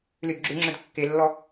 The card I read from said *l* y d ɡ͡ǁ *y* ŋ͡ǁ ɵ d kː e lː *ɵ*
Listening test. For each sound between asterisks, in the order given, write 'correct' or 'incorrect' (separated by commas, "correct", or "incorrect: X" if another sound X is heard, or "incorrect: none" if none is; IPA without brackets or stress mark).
correct, correct, incorrect: ɔ